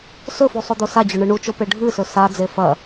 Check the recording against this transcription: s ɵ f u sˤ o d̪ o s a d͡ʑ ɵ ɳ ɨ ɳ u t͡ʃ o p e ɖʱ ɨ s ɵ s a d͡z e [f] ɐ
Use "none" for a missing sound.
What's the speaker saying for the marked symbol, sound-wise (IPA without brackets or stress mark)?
f